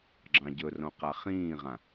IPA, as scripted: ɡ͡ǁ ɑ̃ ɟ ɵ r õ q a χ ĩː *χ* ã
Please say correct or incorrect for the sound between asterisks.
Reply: incorrect: ʁ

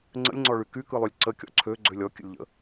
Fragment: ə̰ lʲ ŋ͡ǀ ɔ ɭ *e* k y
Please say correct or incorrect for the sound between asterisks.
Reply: incorrect: y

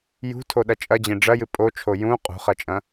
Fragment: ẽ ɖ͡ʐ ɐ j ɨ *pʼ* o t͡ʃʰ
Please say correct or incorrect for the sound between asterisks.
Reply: correct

